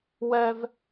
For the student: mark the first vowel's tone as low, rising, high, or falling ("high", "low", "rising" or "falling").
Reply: high